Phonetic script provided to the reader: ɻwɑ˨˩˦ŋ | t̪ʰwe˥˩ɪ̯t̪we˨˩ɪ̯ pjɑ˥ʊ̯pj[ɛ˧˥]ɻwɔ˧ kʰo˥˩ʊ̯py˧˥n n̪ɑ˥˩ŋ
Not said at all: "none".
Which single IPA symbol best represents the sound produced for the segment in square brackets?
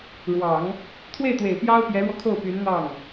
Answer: ɛ˧˥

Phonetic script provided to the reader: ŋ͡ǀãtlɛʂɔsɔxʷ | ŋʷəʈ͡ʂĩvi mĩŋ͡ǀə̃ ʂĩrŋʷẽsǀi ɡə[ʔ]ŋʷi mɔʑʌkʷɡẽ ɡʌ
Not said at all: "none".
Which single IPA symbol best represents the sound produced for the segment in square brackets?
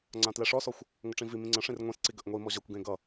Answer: ʔ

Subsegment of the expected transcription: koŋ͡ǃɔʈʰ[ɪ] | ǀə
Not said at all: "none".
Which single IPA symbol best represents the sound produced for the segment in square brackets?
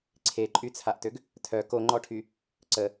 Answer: y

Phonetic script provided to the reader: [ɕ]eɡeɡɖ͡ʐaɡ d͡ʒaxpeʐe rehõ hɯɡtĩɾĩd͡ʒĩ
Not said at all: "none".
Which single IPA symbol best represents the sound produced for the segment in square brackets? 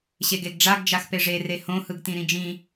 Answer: ɕ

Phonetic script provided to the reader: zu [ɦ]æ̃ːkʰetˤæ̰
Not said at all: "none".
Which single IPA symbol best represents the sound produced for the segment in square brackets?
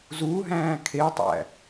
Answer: ɦ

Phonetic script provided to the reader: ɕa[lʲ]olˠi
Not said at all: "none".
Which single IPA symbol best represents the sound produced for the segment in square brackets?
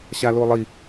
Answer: l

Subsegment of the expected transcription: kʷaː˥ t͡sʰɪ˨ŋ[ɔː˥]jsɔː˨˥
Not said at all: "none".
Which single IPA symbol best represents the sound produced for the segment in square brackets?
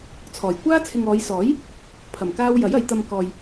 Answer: ɔː˨˧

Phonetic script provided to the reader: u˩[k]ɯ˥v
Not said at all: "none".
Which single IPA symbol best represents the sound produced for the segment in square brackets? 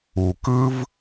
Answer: k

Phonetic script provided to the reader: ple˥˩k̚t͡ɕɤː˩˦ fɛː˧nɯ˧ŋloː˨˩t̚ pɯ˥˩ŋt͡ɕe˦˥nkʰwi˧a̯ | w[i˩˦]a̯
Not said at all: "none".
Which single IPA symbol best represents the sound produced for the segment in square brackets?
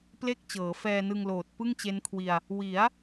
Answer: i˩˦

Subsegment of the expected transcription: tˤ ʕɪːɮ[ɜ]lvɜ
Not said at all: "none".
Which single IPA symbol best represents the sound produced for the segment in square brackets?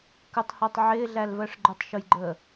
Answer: æ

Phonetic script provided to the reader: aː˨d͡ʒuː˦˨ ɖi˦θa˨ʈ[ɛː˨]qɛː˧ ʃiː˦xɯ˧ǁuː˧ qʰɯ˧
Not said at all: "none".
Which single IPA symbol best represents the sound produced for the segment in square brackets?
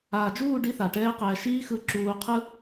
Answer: ɛː˦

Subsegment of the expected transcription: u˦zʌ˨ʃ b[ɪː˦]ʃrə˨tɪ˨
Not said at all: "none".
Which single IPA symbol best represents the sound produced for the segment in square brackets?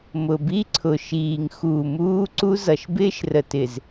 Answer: ɪː˦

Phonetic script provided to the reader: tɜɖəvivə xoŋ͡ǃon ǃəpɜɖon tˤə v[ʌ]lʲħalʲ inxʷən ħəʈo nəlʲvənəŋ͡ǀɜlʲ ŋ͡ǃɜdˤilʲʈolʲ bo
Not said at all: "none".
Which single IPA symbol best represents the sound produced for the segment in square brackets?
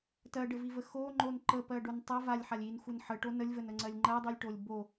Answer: a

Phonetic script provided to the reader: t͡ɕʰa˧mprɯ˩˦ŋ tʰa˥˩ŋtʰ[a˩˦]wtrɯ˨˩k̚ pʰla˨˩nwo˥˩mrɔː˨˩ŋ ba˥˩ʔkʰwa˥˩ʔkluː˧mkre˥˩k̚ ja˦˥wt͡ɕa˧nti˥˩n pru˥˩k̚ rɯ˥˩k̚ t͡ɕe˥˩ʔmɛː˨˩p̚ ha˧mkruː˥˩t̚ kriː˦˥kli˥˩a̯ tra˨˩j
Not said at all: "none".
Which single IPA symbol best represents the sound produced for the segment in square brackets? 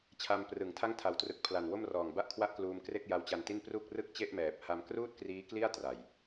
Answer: a˨˩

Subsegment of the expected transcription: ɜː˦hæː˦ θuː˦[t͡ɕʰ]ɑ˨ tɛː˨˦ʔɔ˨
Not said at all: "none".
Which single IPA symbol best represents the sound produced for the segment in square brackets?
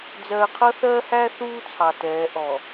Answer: t͡sʰ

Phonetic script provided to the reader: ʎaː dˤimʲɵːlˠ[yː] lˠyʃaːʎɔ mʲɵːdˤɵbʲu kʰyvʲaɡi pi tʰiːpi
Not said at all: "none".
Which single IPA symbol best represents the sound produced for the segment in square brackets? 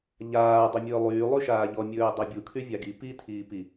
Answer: yː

